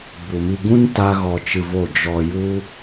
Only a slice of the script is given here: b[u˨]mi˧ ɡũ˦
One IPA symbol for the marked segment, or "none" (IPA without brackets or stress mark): u˨